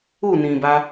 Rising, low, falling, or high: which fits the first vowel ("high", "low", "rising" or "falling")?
falling